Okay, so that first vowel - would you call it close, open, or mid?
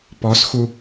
mid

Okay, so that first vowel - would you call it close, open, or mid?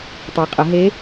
mid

